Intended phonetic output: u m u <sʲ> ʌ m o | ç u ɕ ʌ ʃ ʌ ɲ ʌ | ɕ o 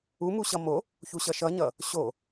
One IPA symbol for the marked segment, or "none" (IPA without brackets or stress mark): ɕ